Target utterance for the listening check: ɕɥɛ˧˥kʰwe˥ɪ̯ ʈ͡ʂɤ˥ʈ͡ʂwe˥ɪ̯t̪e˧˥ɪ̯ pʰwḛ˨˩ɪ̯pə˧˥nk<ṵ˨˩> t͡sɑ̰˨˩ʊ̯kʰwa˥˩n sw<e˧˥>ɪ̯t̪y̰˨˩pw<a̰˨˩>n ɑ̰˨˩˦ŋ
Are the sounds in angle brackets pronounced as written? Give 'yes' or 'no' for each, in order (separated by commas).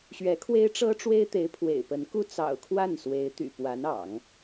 no, yes, no